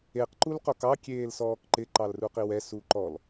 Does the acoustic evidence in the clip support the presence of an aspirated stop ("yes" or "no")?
no